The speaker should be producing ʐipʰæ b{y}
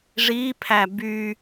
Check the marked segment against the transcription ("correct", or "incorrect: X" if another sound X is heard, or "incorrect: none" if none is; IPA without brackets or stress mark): correct